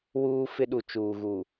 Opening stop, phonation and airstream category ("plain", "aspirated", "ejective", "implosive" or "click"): implosive